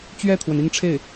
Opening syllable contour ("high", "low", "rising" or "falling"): falling